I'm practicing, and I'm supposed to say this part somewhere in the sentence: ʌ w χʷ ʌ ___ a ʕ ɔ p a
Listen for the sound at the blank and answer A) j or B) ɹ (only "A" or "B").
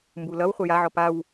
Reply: A